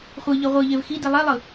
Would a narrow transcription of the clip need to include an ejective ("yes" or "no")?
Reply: no